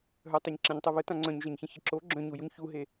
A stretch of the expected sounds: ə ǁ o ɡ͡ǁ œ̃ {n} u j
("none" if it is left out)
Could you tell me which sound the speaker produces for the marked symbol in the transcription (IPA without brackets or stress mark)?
ɲ